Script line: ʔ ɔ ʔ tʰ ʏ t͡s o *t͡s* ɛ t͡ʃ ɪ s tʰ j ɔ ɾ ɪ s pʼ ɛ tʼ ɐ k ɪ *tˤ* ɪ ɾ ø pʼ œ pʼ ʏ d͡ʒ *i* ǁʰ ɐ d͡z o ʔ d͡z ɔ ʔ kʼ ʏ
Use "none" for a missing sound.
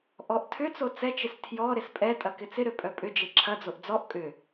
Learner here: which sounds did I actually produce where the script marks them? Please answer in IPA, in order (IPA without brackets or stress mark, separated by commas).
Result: t͡s, t͡s, e